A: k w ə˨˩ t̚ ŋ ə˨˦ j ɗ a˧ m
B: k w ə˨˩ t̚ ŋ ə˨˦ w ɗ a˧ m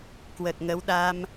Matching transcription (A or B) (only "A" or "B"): B